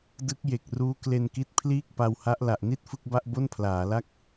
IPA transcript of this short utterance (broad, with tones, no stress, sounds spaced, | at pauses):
d ɯ˦˥ k̚ j e˨˩ k̚ r uː˦˥ k l e˧ n k i˦˥ t̚ pʰ l iː˥˩ k̚ p a˧ w h a˦˥ ʔ l a˨˩ ʔ n i˥˩ t̚ f ɯ˥˩ k̚ b a˥˩ ʔ b o˥˩ n pʰ l aː˩˦ l a˥˩ k̚